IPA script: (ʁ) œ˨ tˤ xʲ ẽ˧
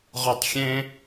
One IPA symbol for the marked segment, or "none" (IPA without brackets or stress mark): ʁ